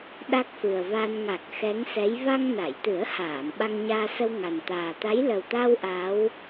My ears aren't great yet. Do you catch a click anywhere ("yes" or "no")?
no